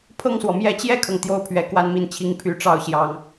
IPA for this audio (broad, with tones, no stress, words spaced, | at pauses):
pʰɤ˥˩ŋswɔ˩mjɛ˥˧ t͡ɕjɛ˥˩kʰɤ˩ŋ t̪jo˥˩ʊ̯pʰɥɛ˧˥ kwa˥˧nmi˥˩nt͡ɕʰi˧˥ŋ pʰy˧˥ʈ͡ʂɑ˥ʊ̯ɕjɑ˧˥ŋ